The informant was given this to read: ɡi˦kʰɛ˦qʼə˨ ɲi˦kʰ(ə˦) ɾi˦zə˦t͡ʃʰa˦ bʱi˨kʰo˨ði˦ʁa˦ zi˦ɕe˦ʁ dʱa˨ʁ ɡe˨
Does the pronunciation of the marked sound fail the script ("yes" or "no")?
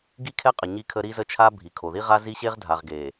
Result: no